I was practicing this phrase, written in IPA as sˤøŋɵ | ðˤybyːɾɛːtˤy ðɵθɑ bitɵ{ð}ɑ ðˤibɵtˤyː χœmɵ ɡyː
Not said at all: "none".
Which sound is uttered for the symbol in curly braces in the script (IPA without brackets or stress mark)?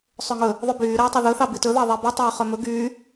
ð